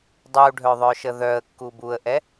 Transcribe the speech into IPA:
dˤuɖʱœðˤœʃə ðœə̯kːub uə̯ʔɛ

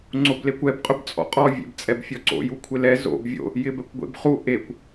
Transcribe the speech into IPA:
ŋ͡ǀoblekʷɛb qʼʊbt͡sʼɔ̰qʼɔ vʲḛbt͡sʼɛbfʲɔǀo̰ jukʷʰɪlɛ zo̰b vʲo̰ | jɪbɛkʷɡʷḛbχu ʔekʷ

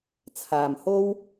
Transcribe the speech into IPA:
t͡sʰaː˨m ho˥w

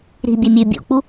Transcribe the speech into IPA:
ɾi̤bʲɛ mʲʉ bʲṵk͡pu

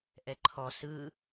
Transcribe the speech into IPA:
ʔɛǃʰɔ sɯ

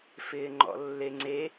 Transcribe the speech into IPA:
fɪːŋ͡ǃɔ̰lːeŋ͡ǀe

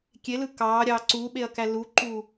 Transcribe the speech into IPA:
kʲelɯ kɑːɾʲɑː ǀuɓeɐ̯kæ luǃuː

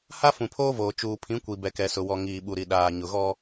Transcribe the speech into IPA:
ha˦ fũ˨pʰoː˦voː˨ t͡ʃuː˨pʰĩ˨˦kʷi˨ bɛ˨kɛ˨sʊ˨wɔ˨ ŋiː˨ɓu˨ɾi˨ ɗaː˨ɲʊ˨ɣɔ˦

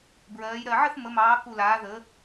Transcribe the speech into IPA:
bɹɜː˩˧jɾɜ˨˩ ʕə˥˧θ mə˩˧mɑː˩˧ ku˨˩laː˩˧ ðə˩˧

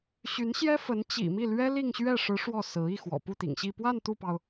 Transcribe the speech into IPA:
ɕy˧˥nɕjɛ˥fə˧˥n t͡ɕḭ˨˩mi˥˩lɥɛ˥ li˥˧ŋɕɥɛ˥˩ ʂɻ̩˧˥ ʂwɔ˥˩sɹ̩˧˥ i˥˩xwɔ̰˨˩ pu˥˩t̪ḭ˨˩ŋɕi˥˧ pwa˥˧n t̪u˥˩pɑ˩ʊ̯

